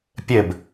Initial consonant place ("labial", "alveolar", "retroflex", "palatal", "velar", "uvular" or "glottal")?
labial